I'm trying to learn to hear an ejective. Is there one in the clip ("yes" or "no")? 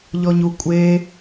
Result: yes